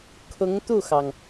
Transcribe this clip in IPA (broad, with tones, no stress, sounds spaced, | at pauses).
kʰ ʊ˧˥ ŋ t̪ u˥˩ x ɑ˩ ŋ